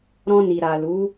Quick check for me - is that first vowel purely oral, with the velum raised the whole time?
no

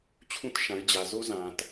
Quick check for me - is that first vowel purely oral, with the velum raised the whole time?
no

